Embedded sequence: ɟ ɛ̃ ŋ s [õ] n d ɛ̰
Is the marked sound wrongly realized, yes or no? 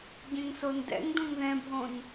yes